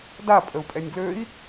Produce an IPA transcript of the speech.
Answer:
d a pʼ ə u̯ pʼ ɛ nʲ ɡ l ø i̯

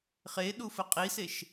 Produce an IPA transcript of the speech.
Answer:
χ e ɗ u f ə qʼ i s e ʃ

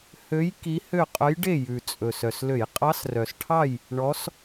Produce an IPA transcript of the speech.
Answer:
h ø˧˥ j k i˧˥ h ø˥˨ qʼ œ˧˥ j ɖ e˥˨ j ʉ˨˩ t͡sʼ ɵ˨˩ s œ˨˩ s l ø˧˩˧ j qʼ ɑ˧˥ s r œ˨˩ s ʈʰ ɑ˥˨ j | ɳ ɔ˧˥ s

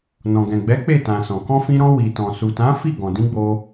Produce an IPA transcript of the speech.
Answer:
n ɔ̃˨ ɡ ɛ̃˨ ɡ͡b ɛ˨˦ k͡p e˦˨ t ã˨ s ɔ̃˨ k ɔ̃˧ f ĩ˧ ɾ ɔ̃˧ w i˨ t ɔ̃˨ s u˨ t ã˨˦ f i˦˨ ɡ ɔ̃˨ d ĩ˧ ɡ͡b o˦

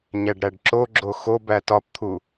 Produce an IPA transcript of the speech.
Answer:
ɲ æ ɖ ɾ æ ɖ ǁ o ɡ͡ǁ o x o b æ t ɒ p t̪ʰ u

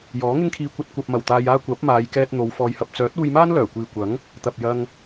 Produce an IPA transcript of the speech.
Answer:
j ɔː˨˥ ŋ ɪ˥ ŋ kʰ iː˧ kʷ ɐ˧ t̚ kʷ ɐ˨ p̚ m ɐ˨˩ w t̪ aː˧ j aː˥ kʷ ɐ˨˥ p̚ m aː˨˧ j k ɛː˧ t̚ n̪ o˨˧ w f ɔː˧ j h ɐ˧ p̚ t͡s œː˨˥ t̚ uː˧ j m aː˥ n l œː˨˩ kʷ iː˨ kʷ ɐ˨˥ ŋ | t̪ ɐ˨ p̚ j ɐ˧ ŋ

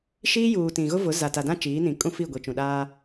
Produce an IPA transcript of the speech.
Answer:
ʃ iː˦ j uː˨ t ĩ˨ ɣ ʊ˦ v ʊ˨˦ z a˨ t a˨ d ã˦ t͡ʃ iː˨˦ n ĩ˨ kʼ ũ˦ f i˦˨ ɡʷ i˨ t͡ʃ ũ˨ ɗ aː˦

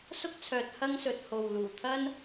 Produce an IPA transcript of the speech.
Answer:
s ʊ˥ k̚ t͡sʰ œː˨ t̚ h ɐ˥ ŋ s ɵ˨ t̚ h o˨ w l uː˨˩ t̪ʰ ɐ˥ n

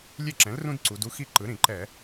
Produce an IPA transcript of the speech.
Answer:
lʲ e˥˩ ǁ ɛ̃˩˥ l r ũ˦ d ǀ u˩˧ d u˦ x i˥˩ ǃ ɯ˩˥ ɾ ĩ˧˩˧ ǃ ɛ˧˩˧

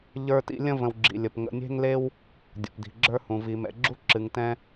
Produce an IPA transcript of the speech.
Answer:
ʎ ə˞˦ t ḭ˦ lʲ ə̃˥ v ə̃˨ w ɡ͡ǁ ḭ˩ lʲ ə˩ p ŋ ə̰˨ nʲ e̤˦ ŋ l e˦ w | dʲ o̰˩ p d i̤˩ ɡ͡ǁ ə˞˦ h ũ˩ v i˩ m ɛ̰˩ ɡ͡ǁ u˥ ǁ ɨ˩ ŋ t ɛ̃˦

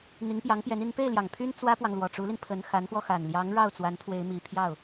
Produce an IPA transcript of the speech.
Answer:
n̪ i˧˥ ŋ p j ɑ˧˥ ŋ p j ɛ˧˥ n i˧˥ n p e˥˩ ɪ̯ l j ɑ˨˩ ŋ pʰ y˥ n t͡s w ä˥ p w ɑ˨ ŋ l w ɔ˨˩ ʈ͡ʂ u˧˥ l i˧ n pʰ ə˧˥ n x a˧˥ n x w ɔ˧ x a˨˩ n l j ɑ˧˥ ŋ ɻ ɑ˥˩ ʊ̯ t͡s w a˧˥ n pʰ w e˧˥ ɪ̯ m i˨˩ pʰ j ɑ˥˩ ʊ̯

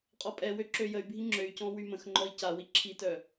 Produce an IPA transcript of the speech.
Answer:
qʼ ɔ pʼ ɛ w ø ǁ ø j ə y̯ bʱ i ŋ͡ǁ ø y̯ c ɔ̃ w y m ə̃ x ŋ͡ǃ ɔ i̯ c a w i ǁʰ i t œ

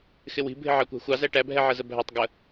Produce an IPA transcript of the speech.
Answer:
x ɪ w i̤ bʱ ɪ ʕ ɑ kʷ æ̤ xʷ ɑ z æ ʈ æ bʱ ɛ ʕ ɜ z ə bʱ æ tˤ ɡ ə

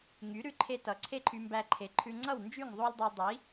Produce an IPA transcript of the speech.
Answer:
ŋ y˩˥ ɾ ʉ˧ ǃʰ e˧ t ʌ˩˥ ǀʰ e˥ ǃʰ y˧ m b æ˧ ǃʰ e˩˥ ǃʰ ʉ˧ ŋ͡ǀ ʌ˥˩ w n d͡ʒ y˥˩ ŋ ðˤ o˥ lʲ dˤ y˧ dˤ i˩˥

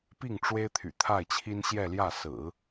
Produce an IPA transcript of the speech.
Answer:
p i˥˩ ŋ ʈ͡ʂ w e˥ ɪ̯ t̪ʰ y̰˨˩ t̪ʰ a˥˩ ɪ̯ t͡ɕʰ i˥ n ɕ j ɛ˥˧ l j ä˥˩ s ɹ̩˨˩˦

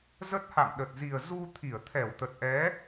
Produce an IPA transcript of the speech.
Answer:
z ə˦˥ t̚ h a̰˧˨ m ɗ ə˨˩ t̚ z i˨˩ ə̯ z u˧ t̪ʰ i˧˩ ə̯ t̪ʰ ɛ˧˩ w t̪ ə˨˩ t̚ ʔ ɛ˨˦

